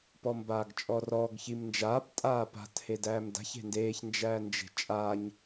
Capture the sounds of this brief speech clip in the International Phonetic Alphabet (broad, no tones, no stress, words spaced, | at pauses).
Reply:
pɔmbaːɡt͡ʃʼɔrɔːɡ çimnd͡ʒaːp tʼaːpa̤t hedæːmda̤ç e̤ndeːç nd͡ʒæːnd͡ʒe̤t͡ʃʼaɲ